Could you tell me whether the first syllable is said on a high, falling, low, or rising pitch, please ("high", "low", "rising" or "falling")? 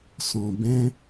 low